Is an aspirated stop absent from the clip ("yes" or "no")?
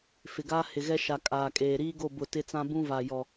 yes